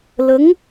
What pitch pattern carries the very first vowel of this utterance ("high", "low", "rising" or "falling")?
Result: rising